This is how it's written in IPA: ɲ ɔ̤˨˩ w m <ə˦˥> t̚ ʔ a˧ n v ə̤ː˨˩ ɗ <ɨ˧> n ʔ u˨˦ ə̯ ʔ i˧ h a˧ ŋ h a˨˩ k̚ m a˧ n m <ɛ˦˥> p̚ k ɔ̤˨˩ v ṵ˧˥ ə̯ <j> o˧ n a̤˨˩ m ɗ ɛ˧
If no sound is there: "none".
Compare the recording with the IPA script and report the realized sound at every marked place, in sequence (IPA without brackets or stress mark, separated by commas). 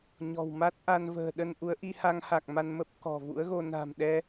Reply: a˦˥, ə˧, ə˦˥, ɣ